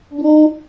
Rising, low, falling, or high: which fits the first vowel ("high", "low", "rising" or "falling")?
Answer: high